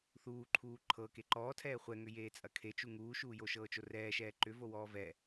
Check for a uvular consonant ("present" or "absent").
present